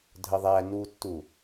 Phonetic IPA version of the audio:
dʱ ə ðˤ æ n u tː u

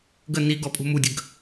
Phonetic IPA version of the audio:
ɡ ə n i ɡ ɔ pʼ ṳ m u dʲ ə ɡ

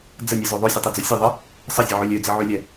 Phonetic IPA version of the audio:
d͡z ə nʲ ɛ z o ðˤ o sʲ ə tˤ ɛ d͡z o sʲ ə ðˤ ə | sˤ ə zʲ ə ʕ ø lʲ ø d͡z ə ʕ ø lʲ ɛ

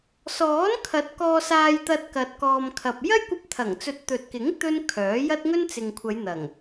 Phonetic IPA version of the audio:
s ɔː˨˥ n kʰ ɐ˨˥ t̚ k ɔː˧ s aː˧ j t̪ ɐ˧ t̚ k ɐ˨ t̚ k ɔː˨ m kʰ ɐ˨ p̚ j ɐ˥ j kʷ ɐ˧ p̚ t̪ʰ ɐ˨˩ ŋ t͡s ɵ˨˥ t̚ t̪ ɵ˨ t̚ k ɪ˨˥ ŋ t̪ ɵ˥ n kʰ œː˨˥ j ɐ˥ t̚ ŋ ɵ˥ n t͡s ɪ˨ ŋ kʷʰ ɐ˨˧ j n̪ ɐ˨˩ ŋ

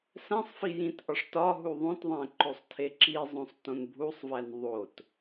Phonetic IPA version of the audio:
s æ̃ sˤ f i j ĩ t ʔ ɒ ʂ t ɒ ɦ u ðˤ õ t ðˤ æ̃ ǃ o sˤ tʰ e ǁ i zˤ õ sˤ t õ n bʱ u sˤ v æ n ðˤ o t

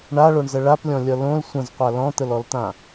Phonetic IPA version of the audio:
ɳ a ɭ o ɳ z ə ɭ a p lʲ ɔ̃ lʲ ʌ l õ l sʷ ə̃ z qʷ a l ɔ̃ t̪ ə l ɔ l t̪ ã

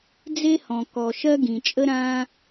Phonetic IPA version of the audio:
d͡z e˥ h ɔ̃˩ k ɔ˩ ʃ ɜ˥ ɡ ĩ˩ t͡ʃʼ ə˥ ɾ ã˥

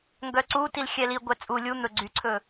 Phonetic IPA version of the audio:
ŋ ɡ œ ǀ u t i l xʲ ɛ l i ɡʷ ɛ t͡sʼ u lʲ u n̪ ɵ ɡ͡ǀ y ǀʰ ɵ

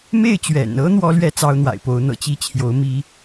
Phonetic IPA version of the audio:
m e˥˩ ɪ̯ t͡ɕ ɥ ɛ̰˨˩ n ɤ˥ n̪ w ɔ˥ l ɥ ɛ˥˩ t͡s ɑ˥ ʊ̯ n̪ w a̰˨˩ ɪ̯ p o˧˥ ʊ̯ n̪ ɤ̰˨˩ t͡ɕ i˥˩ t͡ɕʰ j o˧˥ ʊ̯ m i˥

